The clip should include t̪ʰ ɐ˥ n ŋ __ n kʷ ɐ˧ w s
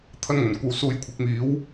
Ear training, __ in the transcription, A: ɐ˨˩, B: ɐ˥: A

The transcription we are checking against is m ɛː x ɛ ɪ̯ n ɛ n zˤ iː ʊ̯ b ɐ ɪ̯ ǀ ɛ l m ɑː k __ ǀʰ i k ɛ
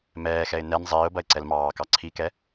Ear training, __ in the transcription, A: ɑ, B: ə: A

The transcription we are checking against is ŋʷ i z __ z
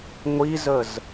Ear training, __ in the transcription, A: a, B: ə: B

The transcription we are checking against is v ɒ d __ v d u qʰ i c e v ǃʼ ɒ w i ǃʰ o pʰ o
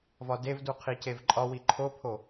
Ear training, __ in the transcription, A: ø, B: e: B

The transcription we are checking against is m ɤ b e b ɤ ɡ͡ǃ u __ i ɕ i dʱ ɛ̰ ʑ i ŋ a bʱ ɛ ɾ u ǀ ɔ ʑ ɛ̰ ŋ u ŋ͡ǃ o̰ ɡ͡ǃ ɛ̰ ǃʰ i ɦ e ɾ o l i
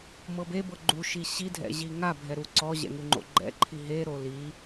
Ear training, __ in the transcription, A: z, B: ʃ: B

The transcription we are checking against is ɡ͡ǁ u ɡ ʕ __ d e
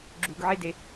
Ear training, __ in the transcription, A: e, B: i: A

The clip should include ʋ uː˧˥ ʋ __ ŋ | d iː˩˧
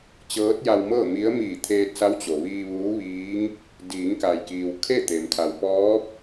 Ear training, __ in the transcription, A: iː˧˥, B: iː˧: A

